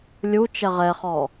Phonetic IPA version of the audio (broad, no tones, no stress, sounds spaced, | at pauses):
lʲ u t͡ʃ ɛ ʁ ɛ χ ɔ